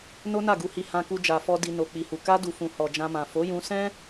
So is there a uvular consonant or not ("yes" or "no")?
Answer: no